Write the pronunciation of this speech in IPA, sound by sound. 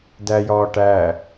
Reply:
d æ j ɒː ʈ æ

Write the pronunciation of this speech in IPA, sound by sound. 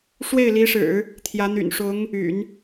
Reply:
ʂ w e˥˩ ɪ̯ l i˧˥ ʂ ɻ̩˨˩˦ | t̪ʰ j ä˧˥ n̪ y̰˨˩ n ʂ ʊ˧˥ ŋ | y̰˨˩˦ n

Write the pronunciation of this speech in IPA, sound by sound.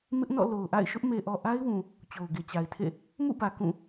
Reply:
m ɪ˦ ʔ n ɔ̰˦˨ l o˨ ʊ̯ ʔ a̰˦˨ ɪ̯ ʃ ʊ˦ ʔ m e˨ ʔ ɔ˨ ʔ a˦ ɪ̯ w ũ˨ | t͡ɕ o˨ ʊ̯ ɡ e˨ t͡ɕ a˨ ɪ̯ tʰ ḛ˦˨ | m ṵ˦˨ b ä˨ k ũ˦˨

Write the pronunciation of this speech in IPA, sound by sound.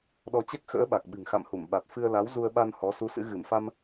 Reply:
ɗ ɔ˧ t͡ɕ ɛ˦˥ k̚ x ə̰ː˧˥ ɓ a˨˩ k̚ ɓ ɨ̤˨˩ ŋ x a̰˧˨ m h u˧˩ m ɓ a˨˩ t̚ f ɨ˧ ə̯ l a˨˦ w z u˧ ə̯ ɓ a˧ n h ɔ˨˦ s u˨˦ s ɨ̰˧˥ ɣ ɨ˧˩ m f a˧ m

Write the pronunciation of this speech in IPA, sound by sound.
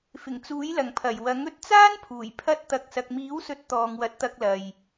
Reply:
f ɪ˨˩ ŋ t͡s uː˨˥ j l ɐ˨˩ ŋ pʰ ɐ˨˩ j w ɐ˨˥ ŋ ɵ˥ t̚ t͡s aː˥ n pʰ uː˨˩ j pʰ ɐ˥ t̚ t̪ ɐ˧ k̚ s ɐ˧ k̚ m iː˨˥ w s ɵ˨˥ t̚ t̪ ɔː˨ ŋ w ɐ˨˥ t̚ t̪ ɐ˧ k̚ l ɐ˨ j

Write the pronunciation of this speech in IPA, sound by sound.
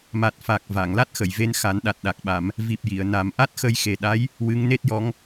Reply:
m a˨˩ t̚ f a˨˩ k̚ v a˨˩˨ ŋ l a˦˥ t̚ x ə˨˩˨ j v e˧ n x a˨˩˦ n ɗ a˨˩ t̚ ɗ a˨˩ k̚ ɓ a˨˩˨ m | v i˨˩ p̚ j i˨˩˨ ə̯ n a˨˩˦ m ʔ a˦˥ t̚ x ə˧ j x e˨˩ ɗ a˧˥ j | w ɨ˧˥ ŋ n e˦˥ t̚ j ɔ˧˥ ŋ

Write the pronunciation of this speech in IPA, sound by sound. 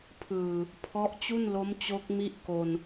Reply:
pʰ ɯː˨˩ | pʰ ɔ˦˥ ʔ t͡ɕ u˥˩ n l o˦˥ m t͡ɕ o˦˥ k̚ m i˥˩ ʔ k o˧ n

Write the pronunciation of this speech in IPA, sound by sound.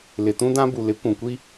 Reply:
l ɪ˨ t ũ˦ d ã˦ b u˨ l ɪ˨˦ kʷ ũ˨ kʷ i˦

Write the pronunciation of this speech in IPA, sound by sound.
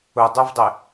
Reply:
ʊ dˤ œ v dˤ ɪ

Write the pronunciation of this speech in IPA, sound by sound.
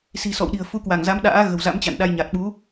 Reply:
s i̤˨˩ s ɔ̰˧˨ w ɗ i̤˨˩ ə̯ f u˨˦ k w a˧˩ ŋ z a˨˦ m ɗ a̰ː˧˥ ɣ ə̤˨˩ w z a̰˧˥ m t͡ɕ a̰˧˨ n ɗ a˧ j ɲ a˨˩ t̚ ɓ u˨˦

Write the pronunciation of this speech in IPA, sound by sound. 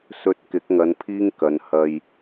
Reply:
s ɵ˧ t̚ k ɪ˨˥ k̚ ŋ ɐ˨˧ n pʰ iː˥ ŋ k ɐ˨˧ n h ɐ˧ j

